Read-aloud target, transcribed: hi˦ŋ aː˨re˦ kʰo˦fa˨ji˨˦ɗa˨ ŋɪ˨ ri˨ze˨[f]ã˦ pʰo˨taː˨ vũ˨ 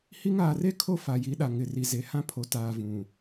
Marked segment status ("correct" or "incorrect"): incorrect